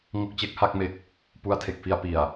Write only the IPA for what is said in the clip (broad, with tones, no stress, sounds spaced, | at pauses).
ŋ o˦˥ k̚ t͡ɕ e˦˥ k̚ h a˥˩ k̚ m e˦˥ k̚ | p u˦˥ a̯ tʰ e˨˩ k̚ f i˧ a̯ p i˨˩ a̯